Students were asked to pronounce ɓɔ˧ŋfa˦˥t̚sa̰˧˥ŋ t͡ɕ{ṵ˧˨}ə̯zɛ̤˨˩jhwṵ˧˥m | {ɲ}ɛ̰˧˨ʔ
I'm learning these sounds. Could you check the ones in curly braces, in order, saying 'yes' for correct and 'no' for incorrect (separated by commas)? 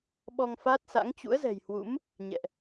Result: no, yes